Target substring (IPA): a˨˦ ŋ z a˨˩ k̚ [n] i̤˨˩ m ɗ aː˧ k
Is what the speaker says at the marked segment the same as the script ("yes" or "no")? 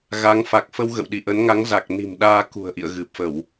yes